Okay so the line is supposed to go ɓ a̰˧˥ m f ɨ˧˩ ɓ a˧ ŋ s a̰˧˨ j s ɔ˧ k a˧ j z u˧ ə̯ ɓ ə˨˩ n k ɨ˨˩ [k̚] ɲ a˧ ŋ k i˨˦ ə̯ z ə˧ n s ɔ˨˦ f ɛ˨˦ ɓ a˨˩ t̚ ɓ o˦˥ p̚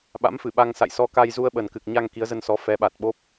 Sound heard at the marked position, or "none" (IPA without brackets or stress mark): k̚